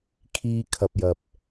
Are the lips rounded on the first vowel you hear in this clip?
no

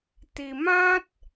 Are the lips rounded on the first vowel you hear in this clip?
no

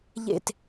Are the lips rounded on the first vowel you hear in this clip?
no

